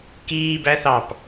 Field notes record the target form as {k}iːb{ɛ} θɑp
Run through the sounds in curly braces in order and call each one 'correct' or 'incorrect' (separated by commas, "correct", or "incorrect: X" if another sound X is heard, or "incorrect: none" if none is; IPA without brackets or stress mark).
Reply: correct, incorrect: æ